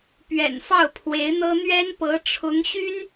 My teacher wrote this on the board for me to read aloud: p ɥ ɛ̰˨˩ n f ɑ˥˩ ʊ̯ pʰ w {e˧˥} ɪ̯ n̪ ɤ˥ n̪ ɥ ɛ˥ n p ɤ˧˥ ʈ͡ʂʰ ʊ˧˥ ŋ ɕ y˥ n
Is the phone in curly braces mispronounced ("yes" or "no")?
no